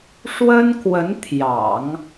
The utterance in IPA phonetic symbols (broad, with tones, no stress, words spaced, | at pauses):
ʂwə˥nkwə˧˥n t̪ʰjɑ̰˨˩˦ŋ